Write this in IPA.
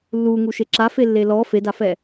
lː u ŋ u ʃ e ǁ a f e lː e l ɔ f e d a f ɛ

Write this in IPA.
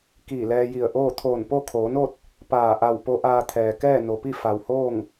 k iː˧˩ l ɛː˧ j i˧˩ ə̯ ʔ oː˥˨ t̪ʰ oː˧˩ n p o˥˨ kʰ oː˩˧ n o˥˨ t̚ | p aː˧˩ ʔ a˧˩ w p o˧˥ ʔ aː˧ t̪ʰ ɛː˩ k ɛː˥˨ n o˩ p i˥˨ f a˩ w h oː˥˨ ŋ

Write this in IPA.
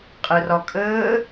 qʼ ə r ɒ kʼ əː

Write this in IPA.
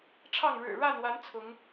ʈ͡ʂʰ ɑ˥˨ ŋ ɻ ɻ̩˨˩ ɻ a˥˨ n w a˨˦ n t͡sʰ ʊ˨˦ ŋ

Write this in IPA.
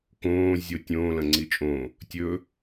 k õː zʲ o tʲ õː l ɐ̃ ŋ͡ǀ i t͡ʃʼ õ | tʲ ɵ

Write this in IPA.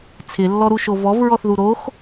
t͡sʰ ɪ lː ɔ ɾ u ʃ o v ɔ v ɹ ɔ θ ð u ɾ o x

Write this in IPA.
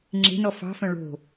ŋ͡ǁ e̤ n ɔ f ɑ̤ f œ̃ ɭ o̤

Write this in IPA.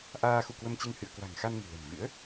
ʔ aː˧ x ṵ˧˨ k w ə˧ m t͡ɕ ɨ˧ ŋ h ɨ̰˧˨ ə̯ k w a̤˨˩ ŋ x a˧ n ŋ ɨ̤˨˩ l ɛ̤˨˩ m v ɨ̰˧˥ ə̯

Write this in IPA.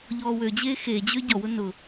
ʎ ɔː w ø d͡ʑ eː x e d͡ʑ ø ɟ ɔ w ʊ n ʊ

